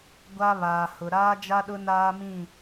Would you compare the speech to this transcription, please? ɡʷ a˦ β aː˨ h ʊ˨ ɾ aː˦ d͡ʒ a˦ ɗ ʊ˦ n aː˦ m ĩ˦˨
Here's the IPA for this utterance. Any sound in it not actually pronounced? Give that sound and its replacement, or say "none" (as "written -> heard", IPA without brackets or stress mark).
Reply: none